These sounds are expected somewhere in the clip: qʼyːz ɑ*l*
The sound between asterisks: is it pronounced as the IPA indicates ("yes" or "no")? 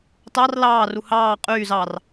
no